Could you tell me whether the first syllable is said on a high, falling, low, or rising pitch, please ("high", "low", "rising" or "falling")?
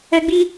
high